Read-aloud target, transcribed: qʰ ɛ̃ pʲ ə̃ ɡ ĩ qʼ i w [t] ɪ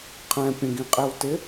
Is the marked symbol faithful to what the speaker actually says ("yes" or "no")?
yes